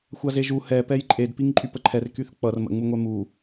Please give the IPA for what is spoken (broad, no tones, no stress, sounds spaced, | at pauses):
xʷ a z e ʒ u h ɛ p ɛ j ǃʼ e d p i ŋ ǃʼ y p ə ǃʰ ɛ r k y θ k͡p ʌ r m ə̰ ŋ͡m u ŋʷ ɛ m u